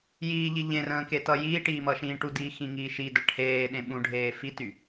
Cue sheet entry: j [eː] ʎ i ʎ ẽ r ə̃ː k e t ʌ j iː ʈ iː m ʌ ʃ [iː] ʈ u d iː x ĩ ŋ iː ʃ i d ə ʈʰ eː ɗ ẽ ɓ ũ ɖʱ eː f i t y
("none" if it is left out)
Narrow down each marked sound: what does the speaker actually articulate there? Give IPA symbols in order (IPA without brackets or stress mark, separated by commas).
iː, ĩː